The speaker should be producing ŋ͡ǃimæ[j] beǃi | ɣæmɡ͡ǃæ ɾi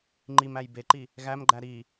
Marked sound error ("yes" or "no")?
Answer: no